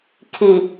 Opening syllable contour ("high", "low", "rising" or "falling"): low